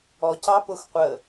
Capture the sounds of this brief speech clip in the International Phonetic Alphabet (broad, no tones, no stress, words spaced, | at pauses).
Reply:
ɔcɑpʊx qʷə